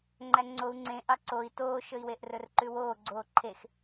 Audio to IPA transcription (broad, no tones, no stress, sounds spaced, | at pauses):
ŋ͡ǃ æ ŋ͡ǀ o u̯ ŋ͡ǀ ẽ ʔ ɑ ǀ o i̯ t oː ʃ ɵ i̯ w e ʔ r ɵ r ǃ ʉ w oː ɡ͡ǀ oː ǃʰ e x